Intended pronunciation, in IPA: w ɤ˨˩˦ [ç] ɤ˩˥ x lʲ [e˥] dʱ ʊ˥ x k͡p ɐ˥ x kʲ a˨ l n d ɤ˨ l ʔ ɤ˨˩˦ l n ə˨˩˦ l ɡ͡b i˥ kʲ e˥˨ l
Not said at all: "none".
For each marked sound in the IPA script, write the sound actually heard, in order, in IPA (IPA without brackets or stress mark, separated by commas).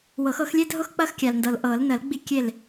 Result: x, e˥